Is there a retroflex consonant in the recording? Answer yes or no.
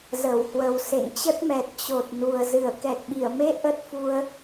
no